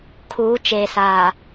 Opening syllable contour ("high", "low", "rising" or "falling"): rising